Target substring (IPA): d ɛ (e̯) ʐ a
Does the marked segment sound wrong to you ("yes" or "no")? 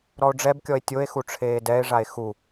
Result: no